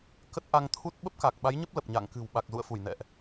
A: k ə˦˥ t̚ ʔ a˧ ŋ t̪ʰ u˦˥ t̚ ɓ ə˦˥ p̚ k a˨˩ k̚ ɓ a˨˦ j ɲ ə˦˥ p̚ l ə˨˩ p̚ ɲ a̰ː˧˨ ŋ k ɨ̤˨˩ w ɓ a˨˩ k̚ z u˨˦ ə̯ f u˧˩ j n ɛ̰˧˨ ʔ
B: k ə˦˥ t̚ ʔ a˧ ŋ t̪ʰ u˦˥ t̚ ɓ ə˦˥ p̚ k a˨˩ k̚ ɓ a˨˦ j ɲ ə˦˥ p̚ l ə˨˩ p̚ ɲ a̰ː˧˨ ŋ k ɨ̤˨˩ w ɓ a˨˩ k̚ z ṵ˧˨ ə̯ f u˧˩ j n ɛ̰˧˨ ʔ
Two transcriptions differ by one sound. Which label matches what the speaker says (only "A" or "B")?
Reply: B